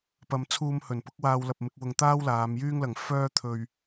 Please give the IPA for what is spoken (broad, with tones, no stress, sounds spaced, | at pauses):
p ɐ˨ m t͡sʰ uː˧ m h ɵ˨˩ n p ʊ˨˥ k̚ w aː˧ w l ɐ˨ p̚ m ɪ˧ k̚ w ʊ˨ ŋ t̪ aː˥ w l aː˨˧ m j yː˥ ŋ l ɐ˨ ŋ f œː˥ t̪ʰ ɵ˧ ɥ